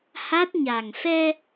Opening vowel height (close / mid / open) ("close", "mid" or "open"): open